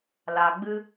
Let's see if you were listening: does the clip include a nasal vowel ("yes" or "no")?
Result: no